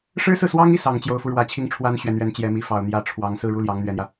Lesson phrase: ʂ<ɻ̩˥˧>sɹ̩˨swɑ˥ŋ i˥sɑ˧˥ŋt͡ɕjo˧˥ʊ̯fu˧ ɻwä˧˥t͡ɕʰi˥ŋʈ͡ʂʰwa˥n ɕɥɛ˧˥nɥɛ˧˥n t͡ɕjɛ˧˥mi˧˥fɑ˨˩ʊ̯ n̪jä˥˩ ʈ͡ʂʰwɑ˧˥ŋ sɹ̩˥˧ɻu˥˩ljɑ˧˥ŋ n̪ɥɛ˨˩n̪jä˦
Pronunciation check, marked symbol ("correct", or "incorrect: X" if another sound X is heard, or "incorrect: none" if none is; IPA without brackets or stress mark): incorrect: ɻ̩˥